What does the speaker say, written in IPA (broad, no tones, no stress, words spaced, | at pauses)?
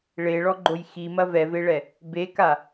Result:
ɭeɭɔɡ͡ǃoj ximɐ vɛveɭɛ | beka